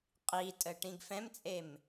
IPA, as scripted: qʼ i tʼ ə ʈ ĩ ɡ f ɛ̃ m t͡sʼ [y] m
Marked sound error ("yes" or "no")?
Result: yes